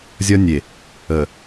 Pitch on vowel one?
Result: high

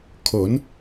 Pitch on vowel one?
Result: rising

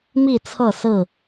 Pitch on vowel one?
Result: falling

